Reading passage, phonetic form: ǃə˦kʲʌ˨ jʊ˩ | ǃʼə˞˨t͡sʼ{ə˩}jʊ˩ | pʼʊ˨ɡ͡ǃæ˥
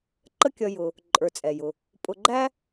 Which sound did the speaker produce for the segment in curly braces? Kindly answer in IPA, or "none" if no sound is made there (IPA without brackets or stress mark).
ɛ˩